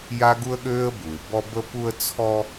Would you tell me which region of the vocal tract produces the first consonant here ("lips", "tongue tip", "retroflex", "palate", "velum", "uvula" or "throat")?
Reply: palate